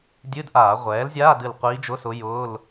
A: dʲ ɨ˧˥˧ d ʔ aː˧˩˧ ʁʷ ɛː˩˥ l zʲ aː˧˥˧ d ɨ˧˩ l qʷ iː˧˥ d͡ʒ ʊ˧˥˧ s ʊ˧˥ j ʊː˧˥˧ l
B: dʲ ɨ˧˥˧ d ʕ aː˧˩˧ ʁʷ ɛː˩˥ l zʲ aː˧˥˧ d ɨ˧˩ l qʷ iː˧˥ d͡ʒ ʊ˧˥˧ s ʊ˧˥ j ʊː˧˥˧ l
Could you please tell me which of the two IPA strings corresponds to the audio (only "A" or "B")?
A